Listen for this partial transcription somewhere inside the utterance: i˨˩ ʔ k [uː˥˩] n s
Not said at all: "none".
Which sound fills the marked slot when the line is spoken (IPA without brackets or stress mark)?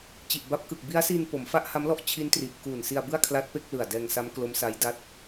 uː˨˩